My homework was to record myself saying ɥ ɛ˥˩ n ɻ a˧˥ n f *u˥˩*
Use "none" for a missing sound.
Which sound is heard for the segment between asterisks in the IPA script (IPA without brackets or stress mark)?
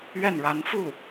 u˥˩